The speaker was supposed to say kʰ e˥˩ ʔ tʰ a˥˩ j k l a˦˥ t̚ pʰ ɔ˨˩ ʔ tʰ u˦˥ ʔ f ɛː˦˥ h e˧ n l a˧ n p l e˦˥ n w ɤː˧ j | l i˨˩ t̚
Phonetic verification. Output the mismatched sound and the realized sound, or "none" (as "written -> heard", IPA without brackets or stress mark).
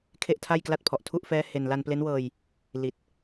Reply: none